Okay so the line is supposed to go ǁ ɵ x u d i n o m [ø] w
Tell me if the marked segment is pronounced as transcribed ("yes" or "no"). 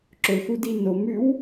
no